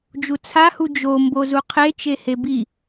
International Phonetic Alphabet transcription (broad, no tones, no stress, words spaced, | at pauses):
d͡ʒut͡sʰahu d͡ʒo mbozuqʰet͡ʃe hebi